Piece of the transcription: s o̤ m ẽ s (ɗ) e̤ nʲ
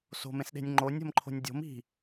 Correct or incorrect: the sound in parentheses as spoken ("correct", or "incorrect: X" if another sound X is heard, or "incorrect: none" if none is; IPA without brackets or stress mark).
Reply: correct